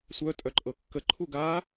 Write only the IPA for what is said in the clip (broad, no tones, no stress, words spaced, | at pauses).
sʷœ tʼœǃʼɤkːə ǃʰuɡa